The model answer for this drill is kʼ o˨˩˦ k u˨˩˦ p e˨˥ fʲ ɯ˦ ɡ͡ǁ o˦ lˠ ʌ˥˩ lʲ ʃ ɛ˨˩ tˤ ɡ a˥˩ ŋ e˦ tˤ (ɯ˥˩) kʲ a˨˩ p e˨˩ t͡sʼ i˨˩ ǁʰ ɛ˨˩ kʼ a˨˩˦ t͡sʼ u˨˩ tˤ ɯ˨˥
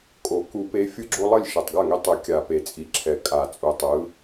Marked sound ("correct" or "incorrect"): incorrect